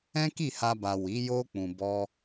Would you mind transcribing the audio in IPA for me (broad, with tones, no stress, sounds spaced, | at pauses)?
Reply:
ɛ̃˦ k i˦˨ h a˧ b a˨ w i˨˦ j o˦ k͡p ũ˧ b ɔ˦